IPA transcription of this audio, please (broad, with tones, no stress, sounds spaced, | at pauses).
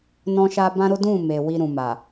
n ɔ̃˦ ʃ a˦ b ã˦ ɾ o˦ d ũ˦˨ m e˨ w i˧ ɾ ũ˨ m a˨